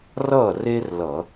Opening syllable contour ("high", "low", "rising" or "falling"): falling